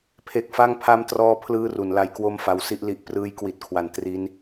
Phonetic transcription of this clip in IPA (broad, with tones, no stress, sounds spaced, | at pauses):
pʰ e˦˥ k̚ f a˥˩ ŋ pʰ a˦˥ m t r ɔː˦˥ pʰ l ɯː˥˩ r u˩˦ n l a˦˥ j k w o˥˩ m f a˧ w s i˥˩ ʔ l i˦˥ ʔ p r ɯː˦˥ j k w i˨˩ t̚ kʰ w a˩˦ n t r i˦˥ n